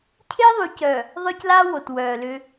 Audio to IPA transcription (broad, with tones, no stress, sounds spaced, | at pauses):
cʰ e˦ ðˤ y˨ c œ˨ | ðˤ œ˦ c l a˦ w o˨ t w œː˨ l ʏ˦